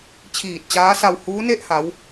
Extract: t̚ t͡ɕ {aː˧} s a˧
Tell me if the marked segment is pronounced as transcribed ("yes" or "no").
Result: no